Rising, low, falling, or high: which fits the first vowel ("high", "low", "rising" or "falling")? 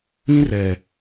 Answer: high